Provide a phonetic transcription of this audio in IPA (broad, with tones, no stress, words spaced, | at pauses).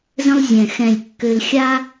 zə̃˥lˠzʲɛ̃˧˩ xɛ̃˧˩lʲkːø˧lxʲa˥